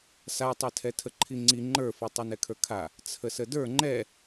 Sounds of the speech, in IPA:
s a tˤ ɛ tʰ ɛ tʰ ə ǃʰ i ŋ͡ǀ i ŋ͡ǃ ə˞ f i tˤ ɛ n ɛ kʰ ə˞ kʰ a | t͡sʰ ə s ə d ə˞ ŋ͡ǃ ɛ

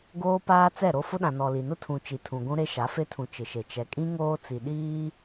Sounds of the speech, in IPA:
ɡ oː˦ p aː˦ t͡s ɛ˦˨ ɾ o˦ f ʊ˦ ɗ ã˨ n ɔ˨ l i˨ n ʊ˦ tʰ ũ˨ t͡ʃ i˨ tʰ ũ˨ ɡʷ ũ˦ ɾ e˦ ʃ a˨˦ f e˦ tʰ ũ˨ t͡ʃ ɪ˨ ʃ e˨ t͡ʃ ɛ˨ kʼ ĩ˦ ŋ oː˦ t͡s i˨ ɗ iː˦

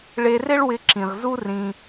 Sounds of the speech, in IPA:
ɭ e˧ r ɪ˦ ɭ w ɪ˧ ǁ ĩ˨ ʁ z u˦ r ĩ˧

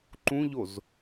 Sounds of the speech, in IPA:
ǃ ũ ʎ o z

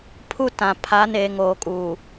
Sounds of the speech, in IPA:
pʰ u˦ t ã˨ pʰ a˨˦ n eː˨ ŋ oː˨ kʼ uː˨

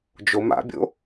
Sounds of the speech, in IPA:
d͡ʒ o m a̰ bʲ o̰

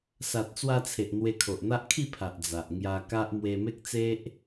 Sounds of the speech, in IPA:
s a˨ t̚ t͡s w a˧ t͡sʰ e˨ ʔ n̪ w e˧ kʰ o˨ ʔ n̪ a˦ ʔ kʰ i˥˧ pʰ a˨ ʔ d͡z a˨ ʔ ŋ j a˧ k a˦ ʔ m w e˧ m e˦ k̚ t͡s e˦ ʔ

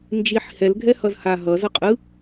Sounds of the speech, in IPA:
n d͡ʒ i ħ h ɛ l ɡʱ ɛ h ʌ z h a ɦ ʌ z ʌ qʼ ɯ

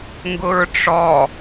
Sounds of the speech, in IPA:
ŋ ɡ ʊ ɹ ʈ͡ʂ ɔ

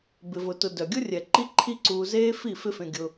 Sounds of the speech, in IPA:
b ɪ˧ v ʊ˧ t ʊ˧ d œ˨ ɡʲ ʊ˦ rʲ ɛ˨ ǃ i˦ ǃʰ i˦ ǀ uː˧ z eː˦ f i˦˨ f ɪ˦ f ẽ˧ ɡʲ ʊ˧

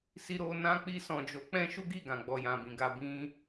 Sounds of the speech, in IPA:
s i˧ ɾ o˧ n ã˧ k͡p i˧ s ɔ̃˨ d͡ʒ o˨˦ k͡p ɛ̃˦ ʃ u˦ ɡ i˦˨ ɡ ã˨ ɡ͡b ɔ˨ j ã˨ b ĩ˨ ɡ a˧ b ĩ˦

